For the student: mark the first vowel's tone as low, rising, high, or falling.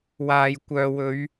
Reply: low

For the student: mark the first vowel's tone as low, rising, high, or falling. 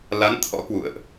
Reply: rising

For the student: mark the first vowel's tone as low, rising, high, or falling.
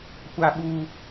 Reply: high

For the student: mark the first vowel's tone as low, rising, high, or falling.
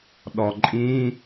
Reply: low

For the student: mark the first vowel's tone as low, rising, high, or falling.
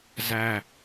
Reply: falling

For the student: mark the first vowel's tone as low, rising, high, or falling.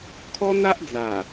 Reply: high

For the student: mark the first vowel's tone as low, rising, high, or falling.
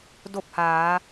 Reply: falling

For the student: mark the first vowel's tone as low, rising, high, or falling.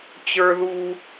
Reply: high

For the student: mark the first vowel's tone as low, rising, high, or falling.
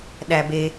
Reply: high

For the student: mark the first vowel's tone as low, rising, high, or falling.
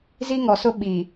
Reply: high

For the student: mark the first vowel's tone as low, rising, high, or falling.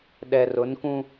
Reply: low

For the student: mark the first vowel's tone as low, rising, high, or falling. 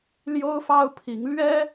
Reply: high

